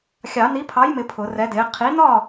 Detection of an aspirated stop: present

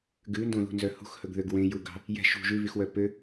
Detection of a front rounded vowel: present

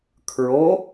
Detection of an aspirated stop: present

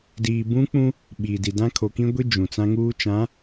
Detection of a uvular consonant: absent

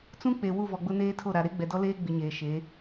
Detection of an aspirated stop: present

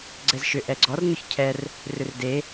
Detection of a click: present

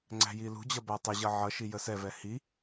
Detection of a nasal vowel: absent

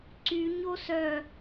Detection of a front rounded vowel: present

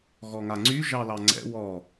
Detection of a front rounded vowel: present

